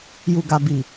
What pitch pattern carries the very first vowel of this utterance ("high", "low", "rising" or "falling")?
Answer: low